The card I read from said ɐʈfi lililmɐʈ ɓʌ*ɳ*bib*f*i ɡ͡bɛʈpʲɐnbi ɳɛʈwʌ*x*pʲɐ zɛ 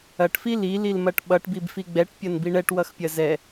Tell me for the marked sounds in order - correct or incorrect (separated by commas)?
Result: incorrect, correct, correct